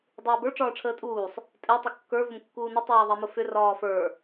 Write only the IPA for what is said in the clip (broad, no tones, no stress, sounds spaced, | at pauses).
dˤ uː b ə˞ ʈ͡ʂ ɒː ʈ͡ʂʰ əː tʼ uː sˤ | tʼ ɛ tˤ ʊ kː ə˞ v ʊ m kː uː n ə tˤ ɛː ðˤ ɛ m ʊ f ʏ r ɒː f ə˞